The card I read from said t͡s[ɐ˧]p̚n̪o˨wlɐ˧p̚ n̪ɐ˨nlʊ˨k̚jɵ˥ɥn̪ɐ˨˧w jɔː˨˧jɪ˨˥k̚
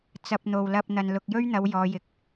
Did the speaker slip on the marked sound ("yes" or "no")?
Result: no